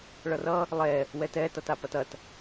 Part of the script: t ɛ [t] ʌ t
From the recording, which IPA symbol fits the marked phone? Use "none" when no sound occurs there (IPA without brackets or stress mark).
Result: t